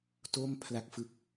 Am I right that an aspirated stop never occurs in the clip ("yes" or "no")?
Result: no